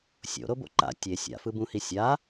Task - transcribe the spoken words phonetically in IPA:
sʲ o̰ ɾ o b o̰ ǃ a̰ tʲ e sʲ a̰ f ɯ b ũ h i sʲ a

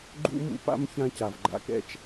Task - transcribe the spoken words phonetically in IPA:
ɡ͡ǃ ṵ˥ m ṵ˦ p a̰˥ m ç ã˦ c a˩ v ɡ͡ǃ a̰˨ k ɛ̰˥ t͡ʃ

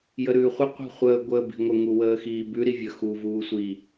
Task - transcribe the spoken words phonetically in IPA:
j ə ɾ ʉː χʷ ə qʷ i̤ χʷ əː ɡʷ əː b i̤ ŋʷ ə ŋ u w əː x iː b ʉ ɾ i vʲ ə x u v uː sʷ i

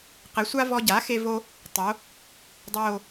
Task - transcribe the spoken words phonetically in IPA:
q ɘ˩˥ sʷ a˥ v ɔ˧ ɟ a˩˥ x e˥ v o˥ | tˤ o˩˥ | dˤ o˥˧

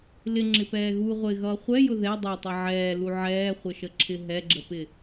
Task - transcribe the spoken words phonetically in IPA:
l ɪ ŋ͡ǁ ɪ p ɛː ɣ u ʁʷ ɪː ɣ ʌː χʷ ɛ j ʊ ð ɛ dˤ ʌ tˤ ʌ ʕ ɛː l u ʕ ɛː χʷ ə ʃ ə ǁʰ ɪ ɦ ɛ ɡ͡ǁ ə p ɪ

